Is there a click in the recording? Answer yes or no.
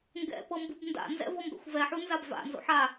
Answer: no